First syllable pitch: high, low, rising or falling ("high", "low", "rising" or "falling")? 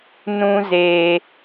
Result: high